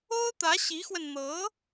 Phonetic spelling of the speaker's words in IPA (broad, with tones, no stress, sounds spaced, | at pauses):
o˥ ʊ̯ t̪ ä˧˥ ɕ i˧˥ x w ə˧ n n̪ ɤ˧˥